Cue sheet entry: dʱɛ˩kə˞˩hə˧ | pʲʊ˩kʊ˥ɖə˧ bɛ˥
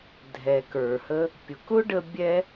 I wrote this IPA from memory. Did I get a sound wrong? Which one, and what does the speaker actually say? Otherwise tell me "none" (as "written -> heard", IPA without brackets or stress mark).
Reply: b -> bʲ